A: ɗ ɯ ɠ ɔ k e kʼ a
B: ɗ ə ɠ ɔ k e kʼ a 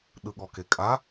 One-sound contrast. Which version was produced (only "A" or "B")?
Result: A